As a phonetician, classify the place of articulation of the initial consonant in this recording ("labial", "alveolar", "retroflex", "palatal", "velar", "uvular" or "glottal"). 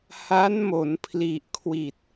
glottal